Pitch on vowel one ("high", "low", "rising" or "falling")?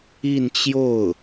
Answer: falling